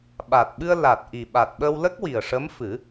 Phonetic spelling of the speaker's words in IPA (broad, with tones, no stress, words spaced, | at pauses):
ɓa˨˩t̚ɓɨ˧ə̯ la˨˩t̚ʔi˨˩ɓa˨˩t̚ ɓə˧wlə˦˥k̚wi˨˩ə̯ʂə˧˥m fɨ˨˩˦